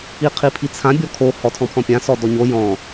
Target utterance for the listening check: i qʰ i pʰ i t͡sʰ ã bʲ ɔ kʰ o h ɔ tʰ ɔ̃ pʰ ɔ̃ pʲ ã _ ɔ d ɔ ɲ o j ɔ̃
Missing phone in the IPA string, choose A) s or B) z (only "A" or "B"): A